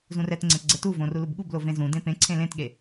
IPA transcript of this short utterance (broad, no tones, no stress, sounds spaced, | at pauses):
z ũ r ɛ t ŋ͡ǀ ẽ p ɡ͡ǀ ɛ t u v õ r u l u b ɠ u b l o v ẽ z ũ d ẽ p ẽ ǀʰ ẽ l ẽ t ɠ e